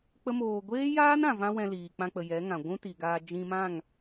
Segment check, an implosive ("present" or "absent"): absent